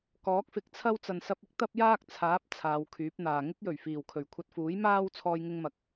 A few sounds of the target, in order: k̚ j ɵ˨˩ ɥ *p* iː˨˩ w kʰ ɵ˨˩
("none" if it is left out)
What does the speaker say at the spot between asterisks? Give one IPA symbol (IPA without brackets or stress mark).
f